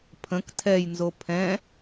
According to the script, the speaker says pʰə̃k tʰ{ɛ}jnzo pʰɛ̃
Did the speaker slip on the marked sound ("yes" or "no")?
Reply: no